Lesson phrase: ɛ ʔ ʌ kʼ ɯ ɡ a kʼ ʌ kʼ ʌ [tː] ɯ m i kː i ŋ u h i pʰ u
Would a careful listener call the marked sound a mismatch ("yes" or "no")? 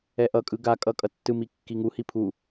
no